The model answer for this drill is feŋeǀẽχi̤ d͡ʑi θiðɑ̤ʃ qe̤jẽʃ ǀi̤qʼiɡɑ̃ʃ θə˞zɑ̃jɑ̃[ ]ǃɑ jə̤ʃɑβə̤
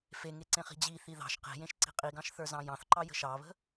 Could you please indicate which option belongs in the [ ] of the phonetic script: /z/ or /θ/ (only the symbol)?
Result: θ